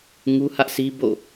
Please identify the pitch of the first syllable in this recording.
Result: high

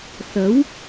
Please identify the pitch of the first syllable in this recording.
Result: rising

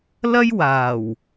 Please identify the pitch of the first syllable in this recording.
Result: high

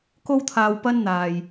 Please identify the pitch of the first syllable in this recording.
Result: high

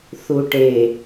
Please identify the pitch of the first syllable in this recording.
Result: low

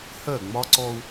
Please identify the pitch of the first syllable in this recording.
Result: falling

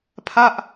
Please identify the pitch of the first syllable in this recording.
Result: falling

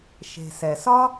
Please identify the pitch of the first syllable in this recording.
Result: low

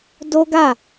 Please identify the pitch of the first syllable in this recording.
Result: high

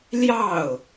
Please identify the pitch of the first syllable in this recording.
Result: falling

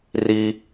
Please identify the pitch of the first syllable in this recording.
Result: high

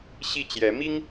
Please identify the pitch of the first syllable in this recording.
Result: falling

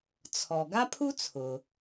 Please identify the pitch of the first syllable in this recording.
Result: low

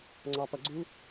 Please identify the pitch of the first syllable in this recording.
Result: low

